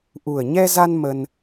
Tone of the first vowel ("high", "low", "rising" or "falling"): low